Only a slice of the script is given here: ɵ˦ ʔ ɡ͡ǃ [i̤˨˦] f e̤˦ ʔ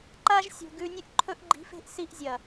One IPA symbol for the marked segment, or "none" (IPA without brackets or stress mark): i̤˨˦